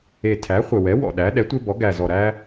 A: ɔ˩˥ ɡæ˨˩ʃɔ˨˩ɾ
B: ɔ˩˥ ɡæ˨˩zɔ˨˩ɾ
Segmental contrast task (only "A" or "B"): B